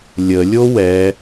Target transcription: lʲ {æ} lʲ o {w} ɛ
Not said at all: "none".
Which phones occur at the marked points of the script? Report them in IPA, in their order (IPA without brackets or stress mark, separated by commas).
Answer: ə, w